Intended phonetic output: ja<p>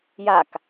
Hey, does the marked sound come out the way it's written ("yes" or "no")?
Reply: no